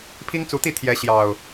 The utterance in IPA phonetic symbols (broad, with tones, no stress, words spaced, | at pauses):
pʰi˦ŋt͡su˨˦t̪i˥˨ t̪ʰjɛ˨˦ɕjɑ˨˩ʊ̯